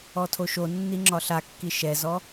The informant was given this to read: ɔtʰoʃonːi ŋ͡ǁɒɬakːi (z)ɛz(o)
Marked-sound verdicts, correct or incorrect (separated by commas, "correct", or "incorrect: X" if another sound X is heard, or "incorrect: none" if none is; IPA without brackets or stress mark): incorrect: ʃ, incorrect: ɔ